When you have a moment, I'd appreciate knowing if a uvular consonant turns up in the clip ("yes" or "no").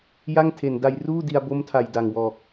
no